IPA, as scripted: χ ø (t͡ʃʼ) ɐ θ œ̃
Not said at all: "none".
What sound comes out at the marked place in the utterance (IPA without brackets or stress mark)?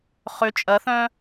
t͡ʃʼ